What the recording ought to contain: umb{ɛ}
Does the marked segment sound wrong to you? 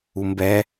no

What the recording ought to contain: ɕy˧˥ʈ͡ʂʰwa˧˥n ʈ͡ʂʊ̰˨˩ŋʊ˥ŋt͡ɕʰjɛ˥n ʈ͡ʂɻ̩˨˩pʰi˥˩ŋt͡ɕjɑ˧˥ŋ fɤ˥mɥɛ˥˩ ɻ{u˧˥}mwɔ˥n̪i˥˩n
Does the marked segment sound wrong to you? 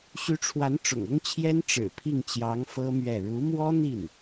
no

